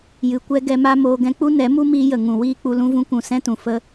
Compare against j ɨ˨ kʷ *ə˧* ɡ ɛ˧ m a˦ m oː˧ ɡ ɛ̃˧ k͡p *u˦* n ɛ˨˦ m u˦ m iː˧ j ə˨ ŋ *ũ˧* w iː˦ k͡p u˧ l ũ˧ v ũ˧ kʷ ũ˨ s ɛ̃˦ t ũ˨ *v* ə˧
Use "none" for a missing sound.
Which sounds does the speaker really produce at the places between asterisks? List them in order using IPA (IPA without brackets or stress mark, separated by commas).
ɛ˧, u˦, ũ˨, f